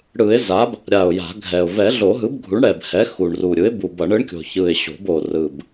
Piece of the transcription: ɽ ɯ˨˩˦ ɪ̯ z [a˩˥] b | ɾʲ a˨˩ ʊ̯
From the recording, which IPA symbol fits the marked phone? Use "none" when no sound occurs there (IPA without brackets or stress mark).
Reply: a˩˥